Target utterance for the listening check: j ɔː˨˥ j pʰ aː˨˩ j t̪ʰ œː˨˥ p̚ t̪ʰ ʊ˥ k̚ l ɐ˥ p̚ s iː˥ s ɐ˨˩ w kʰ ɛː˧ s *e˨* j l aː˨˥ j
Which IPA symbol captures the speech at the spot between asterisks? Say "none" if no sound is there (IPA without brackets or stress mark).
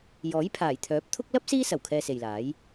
e˨